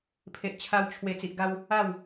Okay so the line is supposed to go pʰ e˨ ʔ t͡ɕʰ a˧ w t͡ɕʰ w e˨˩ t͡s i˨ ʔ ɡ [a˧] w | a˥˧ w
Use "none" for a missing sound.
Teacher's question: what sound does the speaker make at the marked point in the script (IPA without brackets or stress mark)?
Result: a˧